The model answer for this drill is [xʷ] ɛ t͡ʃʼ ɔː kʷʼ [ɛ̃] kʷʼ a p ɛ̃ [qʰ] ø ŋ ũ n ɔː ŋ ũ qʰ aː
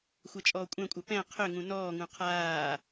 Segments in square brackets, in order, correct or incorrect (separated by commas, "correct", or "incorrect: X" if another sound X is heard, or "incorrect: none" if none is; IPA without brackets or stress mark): correct, correct, correct